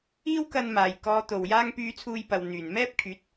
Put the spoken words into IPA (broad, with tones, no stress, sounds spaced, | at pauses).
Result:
iː˥ w k ɐ˧ n m aː˨˩ j k ɔː˨˧ t̪ o˨˩ w j aː˧ ŋ p yː˨˧ t͡sʰ uː˧ j p ɐ˨ w n̪ yː˨˩ n m ɛː˥ p̚ kʰ yː˨˥ t̚